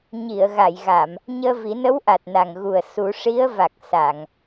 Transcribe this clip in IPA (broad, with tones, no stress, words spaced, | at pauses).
ɲi˨˩˨ə̯ɣa˨˩˨jɣa˨˩˨m | ɲəː˧vi˨˩˦ nə˧˥wʔa˨˩t̚na˨˩ŋɣu˨˩ə̯ su˨˩˦ ʂi˧˥ə̯va˨˩k̚ sa˨˩˨ŋ